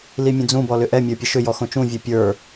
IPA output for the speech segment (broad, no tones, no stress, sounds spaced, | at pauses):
l i mʲ ə̃ d͡z ũ b ɔ l ʏ ʔ ɛ mʲ ə˞ pʲ ə ʃ ʏ j ɔ x õ t͡ʃ ũ vʲ ɛ pʲ ə˞